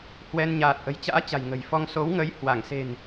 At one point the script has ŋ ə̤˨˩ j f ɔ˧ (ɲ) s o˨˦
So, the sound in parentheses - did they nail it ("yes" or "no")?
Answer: no